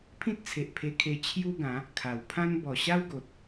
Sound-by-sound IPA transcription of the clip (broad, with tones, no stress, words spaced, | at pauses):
pʰĩ˦t̚t͡sʰe˨ʔ pʰe˧kʰe˧ t͡ɕʰju˦ɡã˨˦ | kʰa˨˩wpʰã˦n bɔ˨˩ɕa˦wɡo˨t̚